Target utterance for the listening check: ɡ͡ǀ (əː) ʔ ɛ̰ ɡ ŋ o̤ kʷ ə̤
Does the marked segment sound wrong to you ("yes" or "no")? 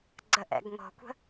yes